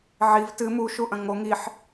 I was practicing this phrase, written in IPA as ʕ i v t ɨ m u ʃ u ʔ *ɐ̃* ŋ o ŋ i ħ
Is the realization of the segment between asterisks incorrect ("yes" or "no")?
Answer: no